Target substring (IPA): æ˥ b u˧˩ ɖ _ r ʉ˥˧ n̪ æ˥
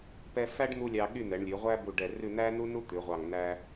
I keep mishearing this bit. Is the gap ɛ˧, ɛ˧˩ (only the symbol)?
ɛ˧˩